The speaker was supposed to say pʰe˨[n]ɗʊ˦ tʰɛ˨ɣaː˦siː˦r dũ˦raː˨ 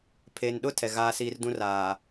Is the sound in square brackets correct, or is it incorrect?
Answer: correct